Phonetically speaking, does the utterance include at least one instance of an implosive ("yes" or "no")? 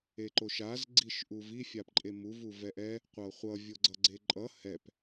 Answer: no